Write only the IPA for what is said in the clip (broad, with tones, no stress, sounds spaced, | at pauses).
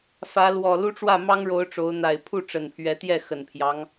f ä˨˦ l w ɔ˨˩ l u˦ ʈ͡ʂ w ä˥˨ m ɑ˦ ŋ ɻ o˨˦ ʊ̯ ʈ͡ʂ o˨˦ ʊ̯ n̪ a˨˩ ɪ̯ pʰ u˥˨ ʈ͡ʂ ə˨˩ n pʰ ɥ ɛ˨˦ t̪ j ɛ˥˨ x ə˨˩ n pʰ j ɑ˦ ŋ